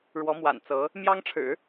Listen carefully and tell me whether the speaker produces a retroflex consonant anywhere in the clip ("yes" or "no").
yes